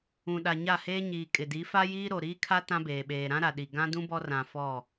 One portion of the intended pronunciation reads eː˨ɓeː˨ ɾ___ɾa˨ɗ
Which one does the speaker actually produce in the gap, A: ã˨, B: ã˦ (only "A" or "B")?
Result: B